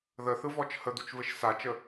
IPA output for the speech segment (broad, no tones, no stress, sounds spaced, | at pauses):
ð ə θ ɯ v ɔ t͡ʃ h ə d̪ u t͡ʃ v ɘ ʃ s a t͡ʃ ə